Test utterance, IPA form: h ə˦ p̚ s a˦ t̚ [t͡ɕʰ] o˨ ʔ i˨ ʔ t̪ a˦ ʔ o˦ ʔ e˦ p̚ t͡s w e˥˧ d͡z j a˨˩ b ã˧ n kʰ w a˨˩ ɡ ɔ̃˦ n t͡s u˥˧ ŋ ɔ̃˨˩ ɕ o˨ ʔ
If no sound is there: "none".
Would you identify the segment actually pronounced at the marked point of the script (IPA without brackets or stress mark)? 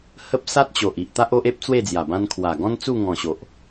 t͡ɕ